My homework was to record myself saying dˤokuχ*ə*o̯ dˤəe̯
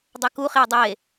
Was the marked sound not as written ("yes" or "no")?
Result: yes